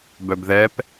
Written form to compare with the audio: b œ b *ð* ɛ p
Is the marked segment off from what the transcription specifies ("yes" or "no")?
no